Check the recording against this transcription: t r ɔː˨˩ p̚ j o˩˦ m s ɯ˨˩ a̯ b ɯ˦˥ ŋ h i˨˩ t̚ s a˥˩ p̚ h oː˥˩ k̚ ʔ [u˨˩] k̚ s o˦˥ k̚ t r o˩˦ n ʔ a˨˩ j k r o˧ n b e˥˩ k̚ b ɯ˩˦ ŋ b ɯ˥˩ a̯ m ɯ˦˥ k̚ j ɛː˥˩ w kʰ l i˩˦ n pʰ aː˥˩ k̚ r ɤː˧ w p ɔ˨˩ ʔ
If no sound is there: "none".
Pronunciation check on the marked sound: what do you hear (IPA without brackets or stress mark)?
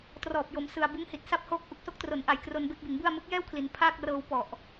u˨˩